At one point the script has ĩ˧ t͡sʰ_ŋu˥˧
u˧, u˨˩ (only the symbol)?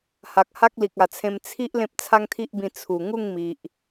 u˨˩